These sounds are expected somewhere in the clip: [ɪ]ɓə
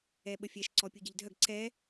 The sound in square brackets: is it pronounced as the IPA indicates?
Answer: no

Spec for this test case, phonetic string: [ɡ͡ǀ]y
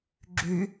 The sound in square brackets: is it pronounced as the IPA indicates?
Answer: no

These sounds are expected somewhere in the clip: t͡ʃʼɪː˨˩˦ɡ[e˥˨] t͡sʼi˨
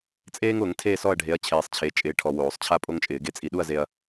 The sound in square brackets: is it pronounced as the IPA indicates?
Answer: no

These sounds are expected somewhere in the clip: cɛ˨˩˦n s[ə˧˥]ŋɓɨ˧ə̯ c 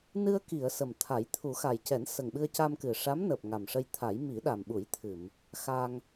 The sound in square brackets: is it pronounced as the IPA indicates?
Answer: no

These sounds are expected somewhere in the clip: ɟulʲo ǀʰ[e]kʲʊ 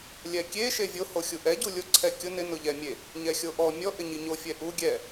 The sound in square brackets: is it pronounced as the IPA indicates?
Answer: no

